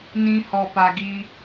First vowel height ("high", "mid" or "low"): high